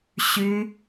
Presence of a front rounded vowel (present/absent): present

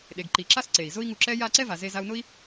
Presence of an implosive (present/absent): present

